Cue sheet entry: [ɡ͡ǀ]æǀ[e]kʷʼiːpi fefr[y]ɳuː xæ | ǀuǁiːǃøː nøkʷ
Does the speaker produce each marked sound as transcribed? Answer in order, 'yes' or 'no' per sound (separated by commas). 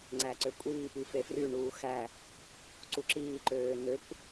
no, no, yes